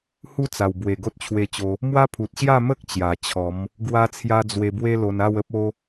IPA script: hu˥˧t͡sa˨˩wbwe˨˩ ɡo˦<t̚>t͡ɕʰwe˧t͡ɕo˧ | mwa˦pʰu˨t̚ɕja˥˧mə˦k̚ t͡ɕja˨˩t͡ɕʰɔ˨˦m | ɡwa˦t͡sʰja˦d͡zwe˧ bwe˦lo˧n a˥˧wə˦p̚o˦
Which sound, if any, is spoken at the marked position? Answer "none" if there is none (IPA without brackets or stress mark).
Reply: t̚